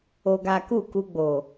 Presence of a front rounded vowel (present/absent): absent